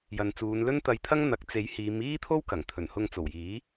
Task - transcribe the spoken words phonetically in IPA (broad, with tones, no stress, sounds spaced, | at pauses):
j ɐ˨ n t͡s uː˨˧ n l ɵ˥ n t̪ ɐ˧ j t̪ʰ ɐ˥ ŋ n̪ ɐ˨˥ k̚ t͡s e˨˥ j h iː˨˧ m iː˥ t̪ʰ o˥ w k ɐ˨˩ ŋ t̪ʰ ɵ˨˩ n h ʊ˧ ŋ t͡s o˨˩ w j iː˨˥